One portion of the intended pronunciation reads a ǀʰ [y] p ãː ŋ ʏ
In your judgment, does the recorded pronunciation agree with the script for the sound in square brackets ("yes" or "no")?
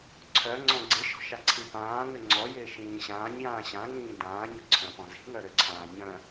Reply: no